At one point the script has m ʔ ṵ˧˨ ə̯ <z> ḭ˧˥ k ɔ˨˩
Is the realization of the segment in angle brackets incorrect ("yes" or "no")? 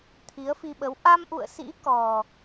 yes